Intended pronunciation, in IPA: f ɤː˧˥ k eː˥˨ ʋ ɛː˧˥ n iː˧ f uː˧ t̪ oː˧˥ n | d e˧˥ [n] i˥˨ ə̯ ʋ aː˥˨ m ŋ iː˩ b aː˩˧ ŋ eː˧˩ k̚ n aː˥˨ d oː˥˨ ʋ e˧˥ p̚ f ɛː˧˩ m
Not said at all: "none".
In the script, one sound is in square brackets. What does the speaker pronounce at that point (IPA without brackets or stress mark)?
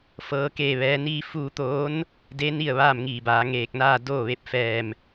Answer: n